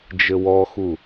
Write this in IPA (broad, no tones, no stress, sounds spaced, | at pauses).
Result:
d͡ʒ ɘ w ɔ x u